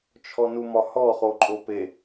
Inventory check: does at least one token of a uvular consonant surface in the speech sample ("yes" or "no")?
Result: yes